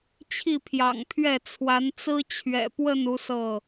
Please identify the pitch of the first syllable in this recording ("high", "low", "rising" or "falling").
falling